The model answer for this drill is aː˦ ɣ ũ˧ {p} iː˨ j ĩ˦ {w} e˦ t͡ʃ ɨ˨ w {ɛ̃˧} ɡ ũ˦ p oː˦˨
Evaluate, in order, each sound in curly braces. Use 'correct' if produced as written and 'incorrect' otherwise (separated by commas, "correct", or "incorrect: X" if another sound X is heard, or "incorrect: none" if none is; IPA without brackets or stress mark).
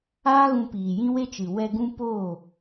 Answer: correct, correct, incorrect: ɛ˧